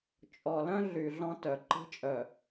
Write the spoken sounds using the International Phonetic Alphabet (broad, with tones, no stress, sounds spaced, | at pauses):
t͡ʃʼ ɔ˨ l œ̃˦ ɮ y˨ ɮ ɔ̃˦ t œ˨ ǃ i̤˦ t͡ʃʼ œ˨